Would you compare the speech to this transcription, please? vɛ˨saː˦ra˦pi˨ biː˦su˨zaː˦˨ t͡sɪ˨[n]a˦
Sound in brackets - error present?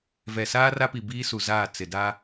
yes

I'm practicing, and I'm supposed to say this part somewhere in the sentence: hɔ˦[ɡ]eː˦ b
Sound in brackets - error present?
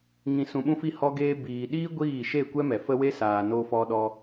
no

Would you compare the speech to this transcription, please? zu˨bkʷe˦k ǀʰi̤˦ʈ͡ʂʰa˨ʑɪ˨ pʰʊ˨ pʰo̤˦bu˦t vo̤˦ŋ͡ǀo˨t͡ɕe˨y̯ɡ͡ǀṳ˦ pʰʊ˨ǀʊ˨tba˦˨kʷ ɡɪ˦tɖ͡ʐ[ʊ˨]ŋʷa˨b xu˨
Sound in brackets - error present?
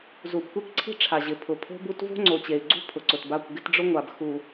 yes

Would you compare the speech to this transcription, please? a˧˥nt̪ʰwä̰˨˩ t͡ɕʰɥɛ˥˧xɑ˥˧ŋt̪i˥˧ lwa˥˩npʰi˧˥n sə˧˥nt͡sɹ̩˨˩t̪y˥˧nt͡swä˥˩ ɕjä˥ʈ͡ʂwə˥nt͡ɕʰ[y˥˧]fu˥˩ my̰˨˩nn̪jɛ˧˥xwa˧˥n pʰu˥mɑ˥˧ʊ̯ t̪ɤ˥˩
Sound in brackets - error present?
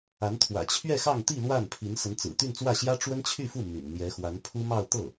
no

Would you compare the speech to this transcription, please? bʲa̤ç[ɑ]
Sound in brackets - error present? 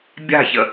yes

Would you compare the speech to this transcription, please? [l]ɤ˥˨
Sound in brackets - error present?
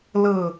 no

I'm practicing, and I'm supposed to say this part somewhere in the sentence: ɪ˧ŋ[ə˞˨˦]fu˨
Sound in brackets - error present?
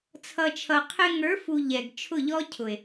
no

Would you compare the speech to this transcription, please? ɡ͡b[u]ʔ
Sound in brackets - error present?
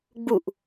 no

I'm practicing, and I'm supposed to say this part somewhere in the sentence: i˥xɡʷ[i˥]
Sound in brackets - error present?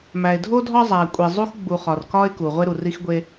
yes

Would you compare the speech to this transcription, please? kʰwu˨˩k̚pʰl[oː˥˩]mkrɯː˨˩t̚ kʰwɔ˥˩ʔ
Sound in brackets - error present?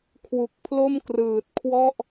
yes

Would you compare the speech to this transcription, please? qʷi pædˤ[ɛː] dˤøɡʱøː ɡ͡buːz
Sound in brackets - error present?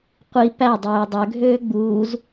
yes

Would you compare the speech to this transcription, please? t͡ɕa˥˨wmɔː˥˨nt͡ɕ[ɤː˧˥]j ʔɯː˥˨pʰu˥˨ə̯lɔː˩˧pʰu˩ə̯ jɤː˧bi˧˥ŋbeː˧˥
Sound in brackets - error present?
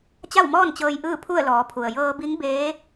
yes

